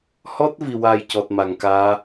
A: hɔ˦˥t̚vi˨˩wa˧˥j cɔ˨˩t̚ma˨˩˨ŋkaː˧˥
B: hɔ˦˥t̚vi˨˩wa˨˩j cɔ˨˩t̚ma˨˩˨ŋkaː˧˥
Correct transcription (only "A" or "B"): B